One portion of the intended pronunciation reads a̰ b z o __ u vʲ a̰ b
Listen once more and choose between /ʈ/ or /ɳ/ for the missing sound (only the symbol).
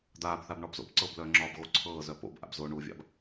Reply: ɳ